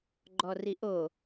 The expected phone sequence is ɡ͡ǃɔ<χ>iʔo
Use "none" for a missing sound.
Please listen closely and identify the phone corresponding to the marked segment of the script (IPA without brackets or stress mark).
r